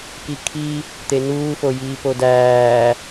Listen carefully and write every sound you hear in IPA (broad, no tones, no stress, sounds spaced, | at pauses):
k i kʰ i | t̪ e n uː f o j iː p o d æː